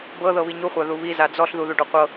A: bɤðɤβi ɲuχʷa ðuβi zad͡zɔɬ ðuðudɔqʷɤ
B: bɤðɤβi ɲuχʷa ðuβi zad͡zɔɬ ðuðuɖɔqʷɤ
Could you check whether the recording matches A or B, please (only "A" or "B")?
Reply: B